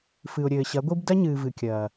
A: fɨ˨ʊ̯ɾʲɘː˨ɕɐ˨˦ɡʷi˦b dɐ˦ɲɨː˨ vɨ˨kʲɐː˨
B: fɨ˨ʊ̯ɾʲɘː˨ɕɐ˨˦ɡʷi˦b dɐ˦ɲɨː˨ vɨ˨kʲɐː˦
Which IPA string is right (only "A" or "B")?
A